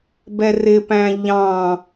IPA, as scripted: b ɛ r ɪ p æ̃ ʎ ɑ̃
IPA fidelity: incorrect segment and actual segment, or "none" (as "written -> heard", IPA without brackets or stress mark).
none